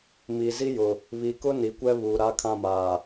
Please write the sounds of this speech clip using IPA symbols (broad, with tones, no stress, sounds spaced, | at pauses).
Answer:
m i˨ z i˦ j ʊ˨ | β i˨ k ʊ˦ n i˨ kʷ ɛ˦ β uː˨ ɾ a˦ kʰ ã˦˨ m aː˨